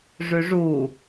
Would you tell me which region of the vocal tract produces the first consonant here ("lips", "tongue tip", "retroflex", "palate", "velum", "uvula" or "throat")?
retroflex